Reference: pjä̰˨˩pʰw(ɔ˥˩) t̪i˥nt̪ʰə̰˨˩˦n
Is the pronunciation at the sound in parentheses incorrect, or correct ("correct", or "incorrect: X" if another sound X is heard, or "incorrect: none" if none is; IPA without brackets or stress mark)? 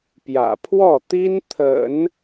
correct